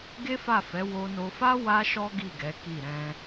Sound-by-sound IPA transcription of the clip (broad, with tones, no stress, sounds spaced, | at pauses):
ɡ e˦ f a˦˨ f ɛ˨˦ w o˧ n o˧ f a˦ w a˦ ʃ ɔ˦ ɡ i˦˨ ɡ ɛ˨˦ k i˦˨ ɾ ɛ̃˧